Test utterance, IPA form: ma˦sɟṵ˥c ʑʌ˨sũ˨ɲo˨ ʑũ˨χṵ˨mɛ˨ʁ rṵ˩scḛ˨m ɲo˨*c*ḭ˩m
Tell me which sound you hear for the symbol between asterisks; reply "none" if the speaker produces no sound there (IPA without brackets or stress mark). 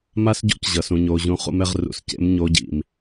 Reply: ɟ